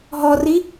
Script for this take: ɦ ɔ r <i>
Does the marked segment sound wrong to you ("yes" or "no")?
no